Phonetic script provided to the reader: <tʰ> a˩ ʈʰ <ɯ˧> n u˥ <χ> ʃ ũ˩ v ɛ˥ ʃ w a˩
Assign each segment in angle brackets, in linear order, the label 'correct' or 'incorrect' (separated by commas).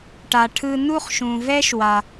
incorrect, correct, correct